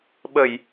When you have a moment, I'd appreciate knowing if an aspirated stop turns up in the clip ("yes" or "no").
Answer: no